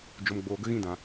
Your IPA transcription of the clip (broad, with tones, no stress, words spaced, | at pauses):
d͡ʒo˨mɡ͡boː˨ɡə˧ ɣĩ˧dã˨